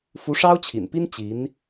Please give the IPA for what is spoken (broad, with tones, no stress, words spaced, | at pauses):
fu˧˥ʂɑ˥ʊ̯t͡ɕʰḭ˨˩npi˥n t͡ɕi˧˥n